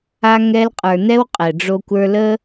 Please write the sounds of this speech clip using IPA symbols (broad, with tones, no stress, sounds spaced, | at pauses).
a˧ ŋ ɛ˧ l qʼ ə˞˨ n ɛ˦ w qʼ ɛ˨ ɖ͡ʐ o˦ kʷ ə˞˦ l ə˦